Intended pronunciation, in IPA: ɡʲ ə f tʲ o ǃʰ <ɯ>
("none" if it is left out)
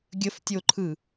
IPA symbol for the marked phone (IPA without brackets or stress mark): ɯ